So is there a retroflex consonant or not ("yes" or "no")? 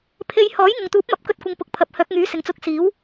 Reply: no